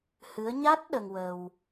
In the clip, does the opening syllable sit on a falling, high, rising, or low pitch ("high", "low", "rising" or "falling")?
rising